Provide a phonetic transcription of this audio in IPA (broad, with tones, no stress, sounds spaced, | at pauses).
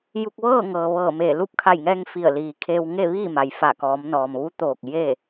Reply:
j u˧ k̚ ʋ ɤː˥˨ ŋ ɤː˩ ʋ ɤː˧˩ m eː˧˩ l u˧˥ p̚ kʰ a˧˩ j ŋ ɛː˧ ŋ f i˧˩ ə̯ l iː˩ kʰ eː˧ w ŋ e˥˨ ʋ iː˥˨ m a˩ j f a˧˩ k ɔː˩˧ m n ɔː˩ m ʋ u˧˥ t̪ oː˧˩ k̚ j e˥˨